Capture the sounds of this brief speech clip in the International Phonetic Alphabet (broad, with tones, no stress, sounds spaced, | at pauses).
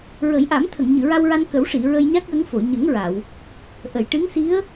ɹ ə˨˩˦ j ʔ a˨˩˦ m t̪ʰ ə˨˩˨ ŋ ɲ ɨ˨˩˨ ɹ a˧ w ɹ a˧ n k ə˨˩˦ w ʂ i˨˩˨ ɹ ə˧ j ɲ a˦˥ k̚ j ə˧˥ ŋ f o˨˩˨ ɲ ə˨˩˦ ŋ ɹ a˨˩˨ w | ʔ ə˨˩˨ j ʈ ɨ˧˥ ŋ s i˧˥ ə̯